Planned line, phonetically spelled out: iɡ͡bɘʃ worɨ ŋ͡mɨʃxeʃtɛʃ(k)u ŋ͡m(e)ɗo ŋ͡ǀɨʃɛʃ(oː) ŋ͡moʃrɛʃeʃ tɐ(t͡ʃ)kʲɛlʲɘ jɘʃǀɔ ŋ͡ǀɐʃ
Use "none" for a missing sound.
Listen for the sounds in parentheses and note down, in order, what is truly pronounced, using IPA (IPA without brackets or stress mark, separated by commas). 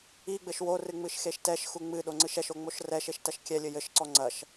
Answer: x, ɨ, o, ʃ